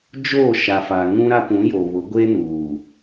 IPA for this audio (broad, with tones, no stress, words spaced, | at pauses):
d͡ʒoː˦˨ʃa˨fa˨ ŋũ˦ɾa˦ pũ˨˦jo˨βʊ˨˦ ɡʷe˦nuː˨